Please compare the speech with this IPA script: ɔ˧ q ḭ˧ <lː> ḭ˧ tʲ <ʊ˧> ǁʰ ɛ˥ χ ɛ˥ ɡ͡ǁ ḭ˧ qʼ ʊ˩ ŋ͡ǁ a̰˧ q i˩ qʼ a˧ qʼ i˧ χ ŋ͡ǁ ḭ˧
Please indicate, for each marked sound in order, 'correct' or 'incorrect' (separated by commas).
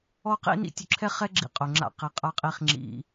incorrect, correct